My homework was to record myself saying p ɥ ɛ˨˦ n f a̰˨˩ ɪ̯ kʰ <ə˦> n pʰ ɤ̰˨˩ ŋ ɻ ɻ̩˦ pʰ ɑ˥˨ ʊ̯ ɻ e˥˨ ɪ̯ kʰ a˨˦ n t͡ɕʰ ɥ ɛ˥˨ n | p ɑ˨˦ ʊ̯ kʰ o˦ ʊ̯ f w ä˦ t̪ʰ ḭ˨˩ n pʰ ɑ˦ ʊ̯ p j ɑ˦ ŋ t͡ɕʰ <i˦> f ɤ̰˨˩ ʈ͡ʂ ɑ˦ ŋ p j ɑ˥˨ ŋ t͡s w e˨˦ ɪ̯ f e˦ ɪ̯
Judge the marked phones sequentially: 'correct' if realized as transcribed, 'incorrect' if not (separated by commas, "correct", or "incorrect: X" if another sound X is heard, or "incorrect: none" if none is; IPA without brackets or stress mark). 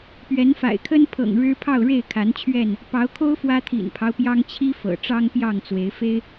correct, correct